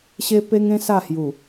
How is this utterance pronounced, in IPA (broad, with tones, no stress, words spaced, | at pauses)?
ɕe˦ pe˦ŋẽ˦ sa˥˧hju˨˩